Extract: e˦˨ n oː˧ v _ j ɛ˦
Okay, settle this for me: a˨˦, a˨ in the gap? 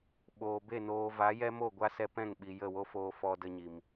a˨˦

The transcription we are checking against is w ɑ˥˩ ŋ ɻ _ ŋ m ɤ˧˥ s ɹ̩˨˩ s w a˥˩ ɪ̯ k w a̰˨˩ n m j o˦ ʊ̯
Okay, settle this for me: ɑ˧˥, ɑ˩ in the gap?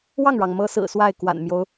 ɑ˩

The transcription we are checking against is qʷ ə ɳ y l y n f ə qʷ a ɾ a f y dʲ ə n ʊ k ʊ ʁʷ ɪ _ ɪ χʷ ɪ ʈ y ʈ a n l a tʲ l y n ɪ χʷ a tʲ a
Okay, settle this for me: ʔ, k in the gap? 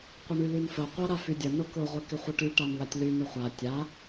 k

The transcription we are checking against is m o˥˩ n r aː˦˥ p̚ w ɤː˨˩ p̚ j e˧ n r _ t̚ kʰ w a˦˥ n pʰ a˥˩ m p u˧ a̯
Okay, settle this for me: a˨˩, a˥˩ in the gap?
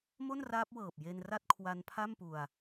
a˥˩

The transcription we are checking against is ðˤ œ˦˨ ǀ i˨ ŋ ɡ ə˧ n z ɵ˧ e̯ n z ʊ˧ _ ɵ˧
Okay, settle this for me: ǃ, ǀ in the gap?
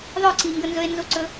ǀ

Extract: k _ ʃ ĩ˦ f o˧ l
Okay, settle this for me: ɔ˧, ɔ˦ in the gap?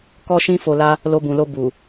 ɔ˦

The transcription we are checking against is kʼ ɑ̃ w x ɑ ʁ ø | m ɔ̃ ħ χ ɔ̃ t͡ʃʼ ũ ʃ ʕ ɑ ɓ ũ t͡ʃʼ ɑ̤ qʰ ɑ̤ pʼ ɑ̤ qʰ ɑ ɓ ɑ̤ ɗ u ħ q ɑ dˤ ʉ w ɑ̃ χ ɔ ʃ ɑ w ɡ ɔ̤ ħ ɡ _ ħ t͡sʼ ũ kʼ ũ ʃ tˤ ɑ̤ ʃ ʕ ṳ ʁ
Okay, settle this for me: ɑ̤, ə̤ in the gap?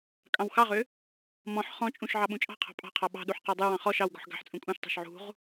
ɑ̤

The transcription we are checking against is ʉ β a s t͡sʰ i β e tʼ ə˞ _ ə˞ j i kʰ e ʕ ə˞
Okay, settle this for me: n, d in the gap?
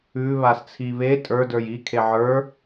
d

